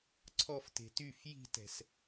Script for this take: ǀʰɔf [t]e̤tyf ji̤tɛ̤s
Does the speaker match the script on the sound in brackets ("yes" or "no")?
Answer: yes